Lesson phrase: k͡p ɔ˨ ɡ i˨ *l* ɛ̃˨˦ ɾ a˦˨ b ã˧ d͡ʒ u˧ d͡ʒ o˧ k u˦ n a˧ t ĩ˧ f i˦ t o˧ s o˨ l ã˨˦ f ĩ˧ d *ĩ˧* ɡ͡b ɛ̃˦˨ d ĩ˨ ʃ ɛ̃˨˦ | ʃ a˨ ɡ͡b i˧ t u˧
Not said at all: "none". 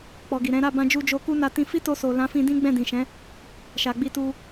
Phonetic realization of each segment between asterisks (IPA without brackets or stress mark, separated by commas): ɾ, ĩ˦